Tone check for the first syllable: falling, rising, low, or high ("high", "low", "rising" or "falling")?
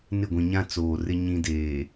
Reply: falling